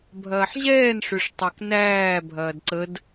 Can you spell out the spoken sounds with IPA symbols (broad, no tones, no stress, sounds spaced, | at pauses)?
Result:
bʱ ɐː ħ ʑ ɛː n ʂ ø ʂ tˤ æ k n æː bʱ ɐː d ǀ ə d